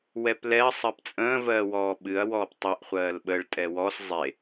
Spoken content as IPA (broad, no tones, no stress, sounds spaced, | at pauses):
w ɛ p l ɛ ɐ̯ sˤ ɜ p t͡sʼ ə̃ː v ɜː w ɔː ɓ ɨ ɐ̯ w ɔː p tˤ ɛ ʔ χʷ ɜː l ɓ ə ɭ tʼ ɛ w ɔ s zˤ e